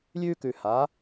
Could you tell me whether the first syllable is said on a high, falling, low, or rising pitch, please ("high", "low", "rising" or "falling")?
high